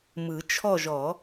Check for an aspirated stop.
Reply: present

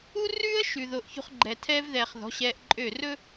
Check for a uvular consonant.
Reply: present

